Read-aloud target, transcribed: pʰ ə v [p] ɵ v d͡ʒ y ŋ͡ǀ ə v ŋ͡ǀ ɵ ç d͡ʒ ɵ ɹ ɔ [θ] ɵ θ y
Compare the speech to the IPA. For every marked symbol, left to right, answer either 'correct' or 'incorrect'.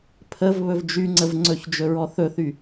incorrect, correct

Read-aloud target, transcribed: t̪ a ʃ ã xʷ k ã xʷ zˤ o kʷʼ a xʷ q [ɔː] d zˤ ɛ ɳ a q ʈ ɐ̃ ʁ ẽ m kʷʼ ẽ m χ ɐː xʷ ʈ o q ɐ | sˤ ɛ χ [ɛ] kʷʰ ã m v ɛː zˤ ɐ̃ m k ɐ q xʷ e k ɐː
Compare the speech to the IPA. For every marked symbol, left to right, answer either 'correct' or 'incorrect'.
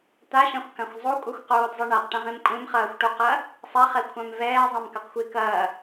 incorrect, correct

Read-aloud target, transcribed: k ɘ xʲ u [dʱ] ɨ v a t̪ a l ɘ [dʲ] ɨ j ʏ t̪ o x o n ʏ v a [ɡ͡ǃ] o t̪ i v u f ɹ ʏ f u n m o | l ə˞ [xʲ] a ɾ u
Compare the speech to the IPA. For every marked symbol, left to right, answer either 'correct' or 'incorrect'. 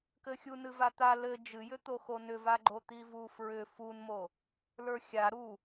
incorrect, incorrect, correct, correct

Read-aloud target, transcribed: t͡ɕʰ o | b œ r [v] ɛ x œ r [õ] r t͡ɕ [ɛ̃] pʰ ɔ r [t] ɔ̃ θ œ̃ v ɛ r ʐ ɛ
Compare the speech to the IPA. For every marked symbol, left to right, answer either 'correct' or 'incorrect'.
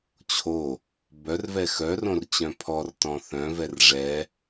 correct, correct, incorrect, correct

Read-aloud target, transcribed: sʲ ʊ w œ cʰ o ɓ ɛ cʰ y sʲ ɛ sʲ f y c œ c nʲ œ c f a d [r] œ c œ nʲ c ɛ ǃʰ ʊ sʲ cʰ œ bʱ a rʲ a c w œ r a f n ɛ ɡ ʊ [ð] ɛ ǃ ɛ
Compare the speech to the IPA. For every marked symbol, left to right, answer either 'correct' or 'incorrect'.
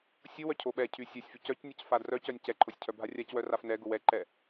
correct, incorrect

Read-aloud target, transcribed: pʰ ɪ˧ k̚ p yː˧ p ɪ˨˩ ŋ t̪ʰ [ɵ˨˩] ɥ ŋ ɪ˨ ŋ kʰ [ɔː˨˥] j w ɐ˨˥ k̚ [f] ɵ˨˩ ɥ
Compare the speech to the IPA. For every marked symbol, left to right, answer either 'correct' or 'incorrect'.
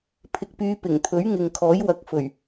incorrect, correct, correct

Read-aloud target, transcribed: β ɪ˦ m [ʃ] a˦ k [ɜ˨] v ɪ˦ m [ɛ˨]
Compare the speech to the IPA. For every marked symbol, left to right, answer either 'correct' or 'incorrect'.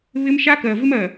correct, correct, incorrect

